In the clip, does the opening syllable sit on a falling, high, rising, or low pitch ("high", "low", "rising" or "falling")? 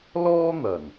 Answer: high